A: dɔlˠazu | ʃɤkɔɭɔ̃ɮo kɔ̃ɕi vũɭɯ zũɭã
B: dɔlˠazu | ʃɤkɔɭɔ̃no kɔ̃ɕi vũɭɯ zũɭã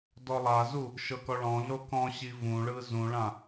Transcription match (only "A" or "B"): A